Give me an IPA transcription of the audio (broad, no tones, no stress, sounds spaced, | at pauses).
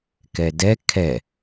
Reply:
k ɛ d ɛ kʰ ɛ